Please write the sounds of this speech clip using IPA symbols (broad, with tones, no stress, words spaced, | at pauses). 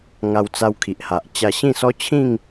ŋa˧wt͡sa˧wkʰi˨ʔha˨ʔ t͡ɕa˧ɕĩ˥˧sɔ˦t͡ɕʰĩ˥˧ŋ